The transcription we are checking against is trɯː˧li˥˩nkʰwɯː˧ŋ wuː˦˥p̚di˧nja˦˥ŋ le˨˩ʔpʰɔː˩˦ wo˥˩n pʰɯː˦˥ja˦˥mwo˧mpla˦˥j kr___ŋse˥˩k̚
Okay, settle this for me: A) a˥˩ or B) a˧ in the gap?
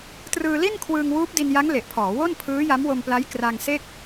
B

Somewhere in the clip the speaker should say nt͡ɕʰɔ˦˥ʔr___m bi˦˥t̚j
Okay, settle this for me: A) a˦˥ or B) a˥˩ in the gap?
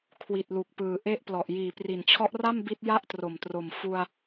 B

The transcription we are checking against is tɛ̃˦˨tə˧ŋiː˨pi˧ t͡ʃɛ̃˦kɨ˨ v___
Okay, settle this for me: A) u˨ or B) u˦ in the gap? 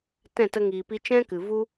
B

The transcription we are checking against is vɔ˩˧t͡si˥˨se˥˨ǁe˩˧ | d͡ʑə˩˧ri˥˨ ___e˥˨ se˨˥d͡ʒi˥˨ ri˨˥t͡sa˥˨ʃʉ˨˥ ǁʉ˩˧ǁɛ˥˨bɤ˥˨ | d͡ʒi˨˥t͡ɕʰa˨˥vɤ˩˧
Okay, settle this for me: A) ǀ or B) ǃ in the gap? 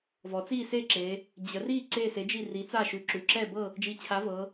A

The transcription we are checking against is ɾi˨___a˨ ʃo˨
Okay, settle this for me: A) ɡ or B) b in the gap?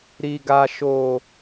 A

